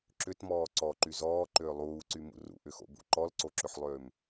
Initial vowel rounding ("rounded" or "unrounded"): rounded